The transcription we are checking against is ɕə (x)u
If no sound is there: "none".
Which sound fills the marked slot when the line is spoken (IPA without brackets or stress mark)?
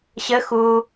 x